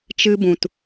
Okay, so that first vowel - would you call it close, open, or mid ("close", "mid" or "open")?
close